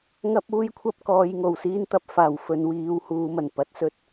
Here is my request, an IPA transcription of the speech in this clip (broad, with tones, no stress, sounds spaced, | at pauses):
ŋ ɐ˥ p̚ uː˥ j kʷʰ ɐ˥ p̚ k ɔː˨˧ j ŋ o˨˩ w s iː˥ n t̪ ɐ˨˥ p̚ f aː˨˩ w f ɵ˨˧ n w iː˨˧ w h uː˨˧ m ɐ˨˩ n p ɐ˨˥ t̚ s ɵ˥ t̚